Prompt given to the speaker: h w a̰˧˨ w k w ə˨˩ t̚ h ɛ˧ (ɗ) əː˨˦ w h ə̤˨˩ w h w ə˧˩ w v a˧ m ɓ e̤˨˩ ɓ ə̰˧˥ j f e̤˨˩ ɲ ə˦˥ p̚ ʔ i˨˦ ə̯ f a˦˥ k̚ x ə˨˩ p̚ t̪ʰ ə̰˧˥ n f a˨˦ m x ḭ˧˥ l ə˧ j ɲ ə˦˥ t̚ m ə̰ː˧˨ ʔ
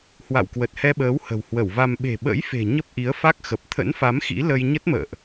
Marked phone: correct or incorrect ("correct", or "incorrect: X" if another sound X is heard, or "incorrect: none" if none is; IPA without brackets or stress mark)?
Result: incorrect: ɓ